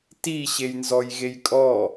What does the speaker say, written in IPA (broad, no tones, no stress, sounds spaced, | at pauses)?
t i ɕ e j n z ɔ j ɣ e j kʼ ɔ